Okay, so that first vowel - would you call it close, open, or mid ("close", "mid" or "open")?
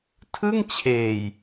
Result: close